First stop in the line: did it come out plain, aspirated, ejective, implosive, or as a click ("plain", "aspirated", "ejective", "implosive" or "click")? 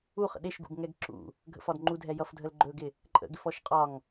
implosive